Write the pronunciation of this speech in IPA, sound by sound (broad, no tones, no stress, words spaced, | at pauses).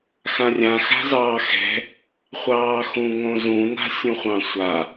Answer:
xãrʲã xa̤zɑːxɛ̤ | χʷɑːxũŋõzũ na̤sʲũχʷɑ̃sʷa